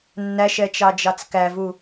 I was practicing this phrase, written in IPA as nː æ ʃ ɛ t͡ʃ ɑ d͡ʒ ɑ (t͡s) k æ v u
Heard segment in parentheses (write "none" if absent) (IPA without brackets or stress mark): t͡s